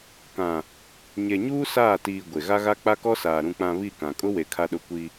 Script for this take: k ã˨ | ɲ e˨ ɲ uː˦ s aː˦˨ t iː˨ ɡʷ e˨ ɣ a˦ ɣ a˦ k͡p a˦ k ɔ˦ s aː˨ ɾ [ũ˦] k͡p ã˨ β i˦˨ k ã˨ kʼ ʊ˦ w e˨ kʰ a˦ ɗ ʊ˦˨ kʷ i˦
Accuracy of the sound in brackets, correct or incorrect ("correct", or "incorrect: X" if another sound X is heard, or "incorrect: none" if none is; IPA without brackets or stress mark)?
incorrect: ũ˨